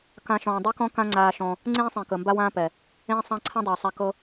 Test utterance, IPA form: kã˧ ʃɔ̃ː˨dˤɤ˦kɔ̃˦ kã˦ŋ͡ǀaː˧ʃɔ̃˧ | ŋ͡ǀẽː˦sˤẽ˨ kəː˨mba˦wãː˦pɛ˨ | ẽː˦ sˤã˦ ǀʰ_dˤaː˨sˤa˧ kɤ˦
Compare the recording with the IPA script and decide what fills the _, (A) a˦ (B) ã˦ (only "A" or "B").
B